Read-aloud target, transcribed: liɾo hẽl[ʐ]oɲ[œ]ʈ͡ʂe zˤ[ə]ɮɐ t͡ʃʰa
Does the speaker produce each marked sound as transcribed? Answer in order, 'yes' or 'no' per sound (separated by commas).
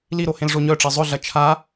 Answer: yes, yes, no